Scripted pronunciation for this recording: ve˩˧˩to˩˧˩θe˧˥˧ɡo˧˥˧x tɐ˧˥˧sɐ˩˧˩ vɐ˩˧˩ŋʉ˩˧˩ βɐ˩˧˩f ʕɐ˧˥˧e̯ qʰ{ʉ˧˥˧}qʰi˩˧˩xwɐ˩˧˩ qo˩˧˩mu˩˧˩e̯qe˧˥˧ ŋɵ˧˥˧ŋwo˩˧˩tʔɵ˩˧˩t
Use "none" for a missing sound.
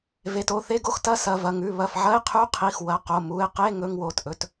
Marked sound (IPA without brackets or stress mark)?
ʉ˧˥˧